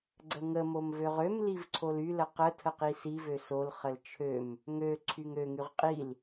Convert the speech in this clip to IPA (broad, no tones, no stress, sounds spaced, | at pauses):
ɡ͡ǀ ə ŋ ə m o m v ø ʁ ø m l i v ǀʰ o l y l ə q ə tʰ ə q i s i v ø s o l χ ə l t͡ʃʰ ø m | ŋ ø ǀʰ y ŋ ø ŋ y ʁ qʼ i l